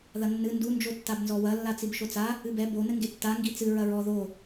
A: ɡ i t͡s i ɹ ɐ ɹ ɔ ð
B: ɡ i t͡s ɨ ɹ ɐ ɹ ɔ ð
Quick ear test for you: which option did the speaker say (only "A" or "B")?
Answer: B